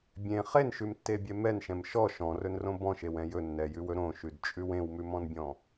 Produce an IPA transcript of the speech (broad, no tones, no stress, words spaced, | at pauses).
bʲẽ χenʃʉmtːebʲɛ mɛnʃɛ̃m ʃɔ ʃɔ̃rɵnrõ bɔ̃ʃewɛ̃ jɵnːɛjʉwɵ ɾõʃʉdt͡ʃʼʉw ẽwmʉmɔ̃nbʲɔ̃